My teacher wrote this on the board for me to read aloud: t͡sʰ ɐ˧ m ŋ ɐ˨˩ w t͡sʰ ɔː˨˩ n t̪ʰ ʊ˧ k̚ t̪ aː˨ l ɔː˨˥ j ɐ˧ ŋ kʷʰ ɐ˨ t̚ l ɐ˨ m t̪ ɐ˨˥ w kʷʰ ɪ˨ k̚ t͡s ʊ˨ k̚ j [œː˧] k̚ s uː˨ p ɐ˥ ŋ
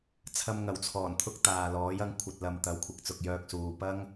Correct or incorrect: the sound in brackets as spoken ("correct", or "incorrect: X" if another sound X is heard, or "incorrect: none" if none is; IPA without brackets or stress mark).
correct